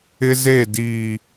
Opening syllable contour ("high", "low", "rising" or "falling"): high